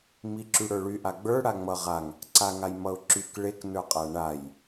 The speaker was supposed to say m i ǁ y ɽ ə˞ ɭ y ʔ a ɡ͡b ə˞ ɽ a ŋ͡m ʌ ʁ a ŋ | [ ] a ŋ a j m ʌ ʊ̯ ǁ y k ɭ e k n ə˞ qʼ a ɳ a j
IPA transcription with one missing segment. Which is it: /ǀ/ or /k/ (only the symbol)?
ǀ